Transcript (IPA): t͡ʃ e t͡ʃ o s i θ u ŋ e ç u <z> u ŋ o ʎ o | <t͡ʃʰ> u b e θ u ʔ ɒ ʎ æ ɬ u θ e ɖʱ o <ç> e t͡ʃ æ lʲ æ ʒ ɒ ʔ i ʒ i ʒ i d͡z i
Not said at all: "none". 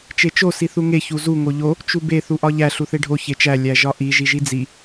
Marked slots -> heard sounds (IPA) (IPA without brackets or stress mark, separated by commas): z, t͡ʃ, ç